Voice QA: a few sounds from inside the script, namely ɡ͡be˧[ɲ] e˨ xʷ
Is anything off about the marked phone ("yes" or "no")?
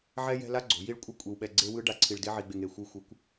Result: yes